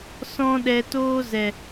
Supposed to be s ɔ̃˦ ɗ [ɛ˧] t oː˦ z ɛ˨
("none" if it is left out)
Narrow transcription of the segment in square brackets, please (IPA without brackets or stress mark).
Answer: ɛ˧